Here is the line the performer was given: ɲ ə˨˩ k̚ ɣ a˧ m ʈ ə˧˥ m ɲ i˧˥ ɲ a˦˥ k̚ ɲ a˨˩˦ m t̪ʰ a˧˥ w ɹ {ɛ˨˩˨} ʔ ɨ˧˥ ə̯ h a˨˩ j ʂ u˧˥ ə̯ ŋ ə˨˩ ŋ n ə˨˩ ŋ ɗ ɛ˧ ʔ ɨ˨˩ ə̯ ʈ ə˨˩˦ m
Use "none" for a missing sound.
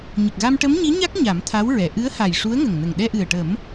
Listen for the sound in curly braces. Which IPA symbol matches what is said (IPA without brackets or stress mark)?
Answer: ɛ˨˩˨